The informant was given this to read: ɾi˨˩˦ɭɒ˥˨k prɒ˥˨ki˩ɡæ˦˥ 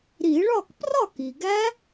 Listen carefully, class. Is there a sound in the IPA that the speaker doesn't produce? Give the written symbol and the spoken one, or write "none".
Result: none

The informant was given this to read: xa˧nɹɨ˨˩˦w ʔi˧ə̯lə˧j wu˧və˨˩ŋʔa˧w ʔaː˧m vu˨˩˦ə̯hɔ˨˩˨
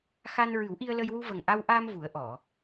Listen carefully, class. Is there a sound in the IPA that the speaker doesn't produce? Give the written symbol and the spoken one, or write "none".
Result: h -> ʔ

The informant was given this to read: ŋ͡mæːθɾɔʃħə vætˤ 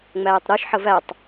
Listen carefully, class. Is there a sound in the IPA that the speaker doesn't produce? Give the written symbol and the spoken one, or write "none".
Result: θ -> tˤ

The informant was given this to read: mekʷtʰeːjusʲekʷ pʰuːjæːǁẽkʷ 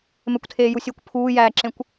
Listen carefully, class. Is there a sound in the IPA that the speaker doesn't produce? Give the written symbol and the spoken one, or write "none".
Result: none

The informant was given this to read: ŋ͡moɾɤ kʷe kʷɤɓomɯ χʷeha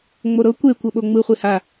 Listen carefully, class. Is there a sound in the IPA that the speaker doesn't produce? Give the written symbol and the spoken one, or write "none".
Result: m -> ŋ͡m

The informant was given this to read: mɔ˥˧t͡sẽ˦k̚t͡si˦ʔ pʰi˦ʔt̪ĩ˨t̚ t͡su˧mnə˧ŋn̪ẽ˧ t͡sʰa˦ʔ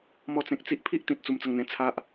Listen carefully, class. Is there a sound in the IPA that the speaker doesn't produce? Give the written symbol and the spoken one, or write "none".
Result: n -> t͡s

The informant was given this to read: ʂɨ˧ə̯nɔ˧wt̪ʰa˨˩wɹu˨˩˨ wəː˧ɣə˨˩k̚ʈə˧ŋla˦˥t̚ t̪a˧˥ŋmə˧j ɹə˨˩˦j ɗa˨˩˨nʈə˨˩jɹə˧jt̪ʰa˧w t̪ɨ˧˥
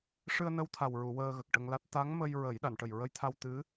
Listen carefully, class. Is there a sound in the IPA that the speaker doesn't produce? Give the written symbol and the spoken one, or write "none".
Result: ɔ˧ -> ə˧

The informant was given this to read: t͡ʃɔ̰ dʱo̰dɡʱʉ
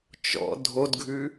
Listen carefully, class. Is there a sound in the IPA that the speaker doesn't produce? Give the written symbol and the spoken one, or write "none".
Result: o̰ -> o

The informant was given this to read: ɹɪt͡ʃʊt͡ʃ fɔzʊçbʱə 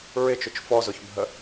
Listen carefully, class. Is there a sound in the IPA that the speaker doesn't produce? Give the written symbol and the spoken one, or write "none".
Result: none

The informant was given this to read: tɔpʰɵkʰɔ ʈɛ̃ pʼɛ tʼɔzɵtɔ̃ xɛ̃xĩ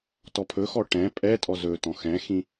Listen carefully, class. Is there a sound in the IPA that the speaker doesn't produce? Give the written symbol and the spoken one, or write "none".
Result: kʰ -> x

